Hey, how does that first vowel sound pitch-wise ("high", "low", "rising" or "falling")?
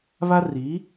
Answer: high